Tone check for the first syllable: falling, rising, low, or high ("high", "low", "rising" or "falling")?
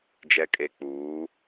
low